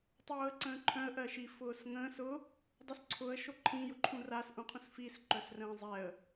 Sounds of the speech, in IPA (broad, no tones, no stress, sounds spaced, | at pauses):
tˤ oː ə̯ ǀ ə̃ː ǃʰ œ̃ ə̯ ʔ ɜ ʃ i f ʊː s ŋ ə̃ː s ʊ | dˤ ʊ s ǀʰ ʊ ə̯ ʃ o ǃʰ ĩ j ʊ ǃʰ ũ r a s ʔ ũ qʰ ũ s f i s ǃ œ s r ə̃ː zˤ ɛ ə̯